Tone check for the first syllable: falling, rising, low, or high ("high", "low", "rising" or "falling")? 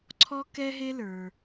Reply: high